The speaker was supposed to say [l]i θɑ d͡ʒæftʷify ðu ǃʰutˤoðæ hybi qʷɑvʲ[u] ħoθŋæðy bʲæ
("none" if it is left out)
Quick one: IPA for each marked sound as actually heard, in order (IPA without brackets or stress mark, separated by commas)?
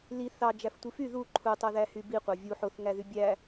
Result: l, u